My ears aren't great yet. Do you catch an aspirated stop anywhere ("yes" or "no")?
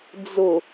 no